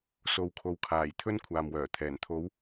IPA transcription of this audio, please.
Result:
s o˨˧ w kʰ o˨˥ w kʰ aː˨˩ j t̪ʰ ɵ˥ n kʷʰ aː˨ m w œː˨˩ t̪ʰ ɛː˨˩ n t̪ʰ o˨˥ w

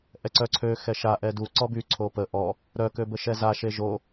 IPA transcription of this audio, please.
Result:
ʔ ɛ ǀ œ ǀʰ ø x ɛ ʃ a ʔ ɛ d u ǀ ɔ b y ǀʰ o p ə ʔ ɔ | ɾ œ k ø b ə ʃ ɛ z a ʃ e ʒ o

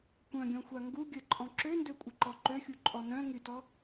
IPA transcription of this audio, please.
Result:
kʷ œ̃ ɡʲ ɔ̃ xʷ a ŋ ɡ u ɡʲ ə ǃʼ ɔ̃ ǁ ø n d ø kʷʼ ə ǃ ɔ ǃ ø xʲ u ǃʼ ɔ n œ̃ ŋ y t ɔ

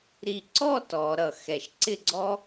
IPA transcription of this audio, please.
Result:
ɾ i˧˩ ǀ ɔ˥˧ t ɔ˩˧ ɾ ʌ˧˩ x ɛ˧˩ ʃ ǀ ɪ˥˧ ɡ͡ǀ ɔ˥

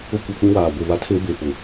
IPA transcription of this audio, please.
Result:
ʊ˦˨ kʷ ɛ˦˨ k͡p ĩ˦ w aː˨ ɡʷ e˦˨ β a˦ tʰ e˦ b e˨ p ʊ˨

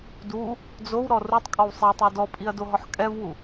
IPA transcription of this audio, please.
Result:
d u | d͡z o w ɾ ɔ r u tˤ kʼ ɔ w sˤ i tˤ i d ɔ pʼ i ɐ̯ d o ɦ ɔ ħ kʼ ɛ v w u

